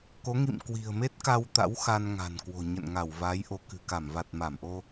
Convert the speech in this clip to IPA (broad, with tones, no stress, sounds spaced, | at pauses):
k o˨˦ ŋ ḭ˧˨ m k w i̤˨˩ ə̯ m e˦˥ t̚ k a˧ w t̪ a̰˧˥ w x a˧ n ŋ a̤˨˩ n k w o̤˨˩ ɲ ə̰˧˨ n ŋ a˧˩ w v a˨˦ j ʔ o˨˦ k ɨ̤˨˩ k a˧˩ m v a˨˩ t̚ m a˧˩ m ʔ o˧